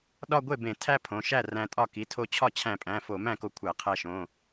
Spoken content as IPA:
ɗ ɒ˥˧ ɡʷ e˥˩ b ẽ˧˩˧ tʰ æ˥˧ pʰ õ˩˧˩ ʃ æ˥˩ r æ̃˧ tʼ ɒ˥˩ k i˩˧˩ tʰ o˧ t͡ɕʰ ɒ˥˩ t͡ɕʰ æ̃˧˩˧ pʼ æ̃˩˧˩ f o˧˩˧ m æ̃˥˩ k o˧ kʷʰ æ˧˩˧ qʰ æ˧ ʃ õ˩˧˩

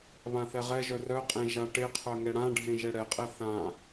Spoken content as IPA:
β ã θ ɛ ʁ ɛ ʒ œ r œ qʼ ẽ ʒ a ʈ e qʰ œ ŋ ɛ ɽ ã ɖʱ ẽ ʒ ɛ ɽ ɛ qʼ ɛ θ ã

